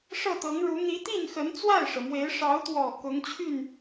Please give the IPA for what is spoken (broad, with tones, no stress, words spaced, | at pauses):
ʂɤ˥˩t̪ɤ˧˥ŋɻu˧˥ n̪i˧˥t̪i˥˩nxə˧˥n t͡swa˥˩ɪ̯ʂɤ˩mwe˧˥ɪ̯ ʂɑ˧˥ʊ̯t̪wɔ˨˩ kʊ˧˥ŋt͡ɕʰy˥˩n